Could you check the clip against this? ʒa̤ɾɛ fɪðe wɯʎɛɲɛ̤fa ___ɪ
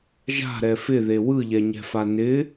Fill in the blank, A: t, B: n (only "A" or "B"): B